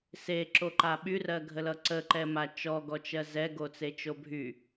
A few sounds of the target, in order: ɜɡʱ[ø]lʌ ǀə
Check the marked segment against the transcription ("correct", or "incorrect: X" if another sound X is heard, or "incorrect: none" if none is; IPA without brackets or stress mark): incorrect: ə